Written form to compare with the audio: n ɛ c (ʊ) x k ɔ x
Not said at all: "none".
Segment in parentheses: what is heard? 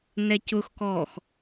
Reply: ʊ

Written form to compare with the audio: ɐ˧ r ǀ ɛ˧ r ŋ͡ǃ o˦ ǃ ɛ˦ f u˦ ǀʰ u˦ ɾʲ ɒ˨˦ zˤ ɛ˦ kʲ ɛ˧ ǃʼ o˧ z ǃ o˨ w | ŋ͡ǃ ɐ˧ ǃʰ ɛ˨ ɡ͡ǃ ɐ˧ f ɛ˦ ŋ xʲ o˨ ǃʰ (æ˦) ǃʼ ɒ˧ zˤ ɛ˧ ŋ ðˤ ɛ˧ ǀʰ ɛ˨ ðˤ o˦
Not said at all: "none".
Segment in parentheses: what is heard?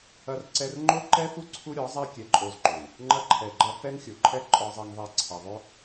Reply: ɛ˦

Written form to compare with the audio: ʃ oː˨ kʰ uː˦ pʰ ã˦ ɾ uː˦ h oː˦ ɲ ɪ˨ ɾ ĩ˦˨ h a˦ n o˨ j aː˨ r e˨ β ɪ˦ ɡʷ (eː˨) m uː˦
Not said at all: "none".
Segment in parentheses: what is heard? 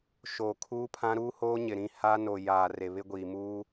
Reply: iː˨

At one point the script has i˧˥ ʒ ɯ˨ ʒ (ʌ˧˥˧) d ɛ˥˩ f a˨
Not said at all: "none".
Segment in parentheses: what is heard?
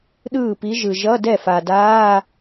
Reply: ʌ˧˥˧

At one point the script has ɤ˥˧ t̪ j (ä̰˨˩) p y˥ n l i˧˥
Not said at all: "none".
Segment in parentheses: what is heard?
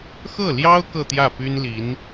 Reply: ä˥˩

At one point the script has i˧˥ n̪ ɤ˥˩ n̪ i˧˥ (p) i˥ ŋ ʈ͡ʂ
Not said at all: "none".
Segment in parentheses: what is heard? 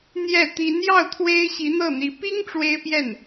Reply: p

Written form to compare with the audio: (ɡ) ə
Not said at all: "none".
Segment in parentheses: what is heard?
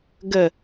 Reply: ɡ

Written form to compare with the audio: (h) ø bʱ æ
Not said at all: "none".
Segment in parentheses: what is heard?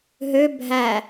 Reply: ɦ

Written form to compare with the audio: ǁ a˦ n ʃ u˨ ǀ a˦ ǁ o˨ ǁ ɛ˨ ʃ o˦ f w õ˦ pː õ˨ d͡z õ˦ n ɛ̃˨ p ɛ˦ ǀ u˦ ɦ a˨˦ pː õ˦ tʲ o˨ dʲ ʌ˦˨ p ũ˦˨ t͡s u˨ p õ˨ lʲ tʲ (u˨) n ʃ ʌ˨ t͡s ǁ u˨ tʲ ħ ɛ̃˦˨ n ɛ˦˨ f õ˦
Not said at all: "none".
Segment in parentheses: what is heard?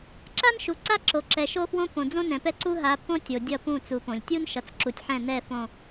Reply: u˦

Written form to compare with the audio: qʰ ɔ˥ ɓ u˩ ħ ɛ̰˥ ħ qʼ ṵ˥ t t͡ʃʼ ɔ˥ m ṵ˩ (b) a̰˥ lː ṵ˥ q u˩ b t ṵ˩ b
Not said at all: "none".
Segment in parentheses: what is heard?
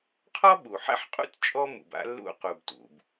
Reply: b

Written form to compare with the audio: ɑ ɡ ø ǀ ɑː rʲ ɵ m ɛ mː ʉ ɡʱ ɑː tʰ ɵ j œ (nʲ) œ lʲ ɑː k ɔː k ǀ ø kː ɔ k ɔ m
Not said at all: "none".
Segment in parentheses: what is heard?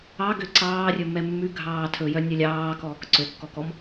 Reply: nʲ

